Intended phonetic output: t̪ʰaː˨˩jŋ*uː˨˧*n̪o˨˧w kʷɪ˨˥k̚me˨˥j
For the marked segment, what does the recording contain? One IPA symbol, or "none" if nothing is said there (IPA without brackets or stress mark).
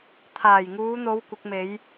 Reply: uː˨˧